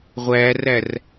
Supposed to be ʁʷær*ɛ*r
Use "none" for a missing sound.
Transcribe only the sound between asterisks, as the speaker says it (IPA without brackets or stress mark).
æ